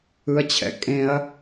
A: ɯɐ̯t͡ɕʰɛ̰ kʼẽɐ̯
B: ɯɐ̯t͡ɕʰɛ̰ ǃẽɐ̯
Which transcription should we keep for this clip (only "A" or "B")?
A